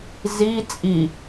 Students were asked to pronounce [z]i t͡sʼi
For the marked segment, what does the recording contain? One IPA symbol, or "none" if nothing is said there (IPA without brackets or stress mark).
z